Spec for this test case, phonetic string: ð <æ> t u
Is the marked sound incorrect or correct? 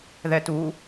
incorrect